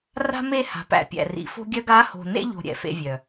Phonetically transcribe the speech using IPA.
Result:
r a̤˦ m e˦˨ h a̤˨ p æ̰˨ pʲ æ̰˨ r ḭ˨ f o̤˦ ɡʲ œ˦ ɡ a˨˦ h o̤˨ n ḛ˦ ʎ o̤˦ ɾʲ ɛ̰˨ f ḛ˦ vʲ œ˨

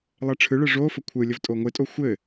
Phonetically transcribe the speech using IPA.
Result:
lˠ ɛ ʈ͡ʂʰ ɯ ɭ ɯ ʐ o f ə kʷʰ ɯ lʲ ə v tʼ o ŋʷ ɪ tʼ o xʷ ɘ

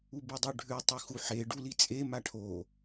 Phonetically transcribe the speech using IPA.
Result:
u b ɯ dˤ ø ɖʱ ʉ tˤ ɯ x u ħ e ɖ u l i t͡sʼ e m a ʈʰ o

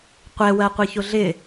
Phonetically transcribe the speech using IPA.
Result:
qʷ ɛ w ɜ qʷ i ç ʊ ɮ ɪ

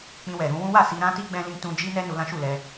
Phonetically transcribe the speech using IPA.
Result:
k͡p ĩ˧ w ɛ˨ ɾ ũ˨˦ w ũ˦ w a˦˨ s i˧ ɾ ã˦ t i˦ ɡ͡b ɛ̃˧ l ĩ˧ t ũ˧ d͡ʒ i˦ n ɛ˦ n u˧ l ã˦ ʃ u˦˨ l ɛ˧

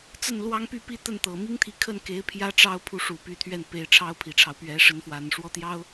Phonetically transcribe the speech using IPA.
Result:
t͡s ə˥˩ n l w ɑ˥ ŋ p y˥˧ p i˥˧ t̪ ə˥˩ n t̪ ɤ˨˩ m i˥ ŋ t̪ʰ i˧˥ kʰ ə˥˩ n k e˧˥ ɪ̯ pʰ j ä˥ ʈ͡ʂ ɑ˥ ʊ̯ pʰ u˧˥ ʂ u˨˩ p y˧˥ t̪ʰ ɥ ɛ˥˩ n p e˧˥ ɪ̯ ʈ͡ʂʰ ɑ˥ ʊ̯ pʰ i˨˩ ʈ͡ʂʰ ɑ˦ ʊ̯ p ɥ ɛ˧˥ ʂ ə˧˥ n f w a˨˩ n ʂ w ɔ˥ t̪ j ɑ˥ ʊ̯

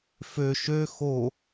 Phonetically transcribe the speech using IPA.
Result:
f ø ʃ ø x o

